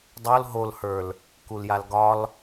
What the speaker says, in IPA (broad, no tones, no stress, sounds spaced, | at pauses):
dˤ o l ɦ o l h ə˞ l | k u l j a l ɡ ɒ l